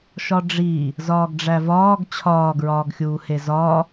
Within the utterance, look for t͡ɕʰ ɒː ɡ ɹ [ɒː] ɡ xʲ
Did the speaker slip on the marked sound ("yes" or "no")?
no